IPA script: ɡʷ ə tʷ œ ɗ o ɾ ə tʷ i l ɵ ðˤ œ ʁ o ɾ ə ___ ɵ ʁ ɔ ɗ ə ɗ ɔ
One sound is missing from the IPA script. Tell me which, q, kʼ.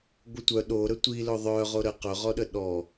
q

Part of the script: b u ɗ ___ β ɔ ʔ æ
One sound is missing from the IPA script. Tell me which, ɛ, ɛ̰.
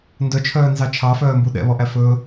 ɛ̰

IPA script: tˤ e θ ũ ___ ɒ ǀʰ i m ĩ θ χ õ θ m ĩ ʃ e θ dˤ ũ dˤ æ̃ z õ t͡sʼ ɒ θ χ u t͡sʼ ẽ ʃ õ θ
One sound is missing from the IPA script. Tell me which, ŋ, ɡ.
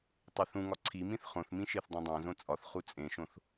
ŋ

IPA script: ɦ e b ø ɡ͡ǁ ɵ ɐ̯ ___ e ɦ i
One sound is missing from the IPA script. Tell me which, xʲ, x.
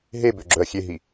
xʲ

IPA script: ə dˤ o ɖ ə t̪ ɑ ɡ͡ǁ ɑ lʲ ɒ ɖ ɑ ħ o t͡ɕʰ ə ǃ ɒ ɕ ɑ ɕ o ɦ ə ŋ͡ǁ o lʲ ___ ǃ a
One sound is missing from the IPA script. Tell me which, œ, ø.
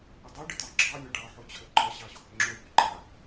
ø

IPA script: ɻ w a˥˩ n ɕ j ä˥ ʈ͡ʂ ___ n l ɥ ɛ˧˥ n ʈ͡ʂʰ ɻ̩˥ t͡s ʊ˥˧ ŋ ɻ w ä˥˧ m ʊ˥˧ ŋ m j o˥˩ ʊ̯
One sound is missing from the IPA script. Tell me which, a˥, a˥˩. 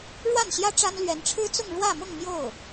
a˥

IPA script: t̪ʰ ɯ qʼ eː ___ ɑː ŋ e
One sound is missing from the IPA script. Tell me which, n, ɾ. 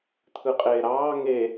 ɾ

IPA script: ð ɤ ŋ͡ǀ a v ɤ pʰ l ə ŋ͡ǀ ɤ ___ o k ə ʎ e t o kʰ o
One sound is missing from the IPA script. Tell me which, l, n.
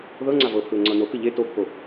n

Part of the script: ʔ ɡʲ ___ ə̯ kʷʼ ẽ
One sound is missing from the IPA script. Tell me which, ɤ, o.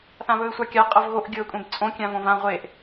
ɤ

